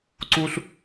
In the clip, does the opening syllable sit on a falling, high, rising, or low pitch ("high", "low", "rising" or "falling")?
high